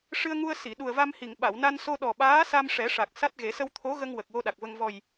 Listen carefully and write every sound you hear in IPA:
ʂ ɨ˧ ə̯ ŋ u˧ ə̯ s i˨˩˨ ɗ u˨˩ ə̯ v a˧ m h i˨˩˨ ŋ ɓ a˨˩˨ w n a˧ n s o˧ ɗ ɔ˨˩ ɓ aː˧˥ s a˧ m ʂ ɛ˨˩˦ ʂ a˨˩ k̚ s a˦˥ t̚ ɣ e˨˩˦ s ə˧ w t̪ʰ o˧˥ ɣ ə˧ ŋ w ə˨˩ k̚ w o˧ ɗ a˨˩ k̚ v ə˧ ŋ v ɔ˨˩ j

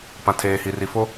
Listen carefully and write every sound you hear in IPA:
p ã˨ tʰ eː˨ h i˨ r i˨ f o˦

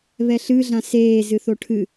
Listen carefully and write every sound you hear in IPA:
β ɛ ɬ ɨ ɮ ã s eː z ɨ θ o ʈʰ ɨ

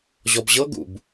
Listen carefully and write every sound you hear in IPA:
ʑ ɔ b ʑ ɤ ɡ ṵ b

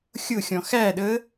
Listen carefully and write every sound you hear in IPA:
xʲ ʊ xʲ ɔ̃ x æ ɗ ə

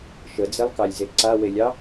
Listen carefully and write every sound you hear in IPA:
ʃ ə d͡z e lˠ k ɑ lʲ z e ǀ a w e lʲ ɑ

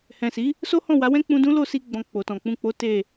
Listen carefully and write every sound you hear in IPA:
h ɛ̃˨ s i˨˦ | s o˦ h ɔ̃˦˨ w a˨˦ w ɛ̃˦ k͡p ũ˧ d ũ˦ l o˦˨ s i˧ ɡ͡b ɔ̃˨ k͡p o˨ t ɔ̃˨ k͡p ũ˧ k͡p o˦ t e˦˨

